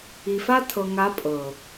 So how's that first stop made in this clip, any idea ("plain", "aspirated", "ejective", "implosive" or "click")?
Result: aspirated